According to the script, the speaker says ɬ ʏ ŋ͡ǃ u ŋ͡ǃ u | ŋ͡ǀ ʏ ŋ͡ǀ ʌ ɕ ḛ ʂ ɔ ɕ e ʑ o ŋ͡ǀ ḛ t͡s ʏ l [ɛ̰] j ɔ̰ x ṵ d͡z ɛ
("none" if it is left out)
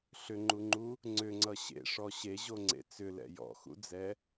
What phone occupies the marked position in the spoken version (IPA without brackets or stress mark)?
ɛ̰